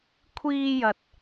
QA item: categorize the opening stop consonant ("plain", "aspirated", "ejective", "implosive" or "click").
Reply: aspirated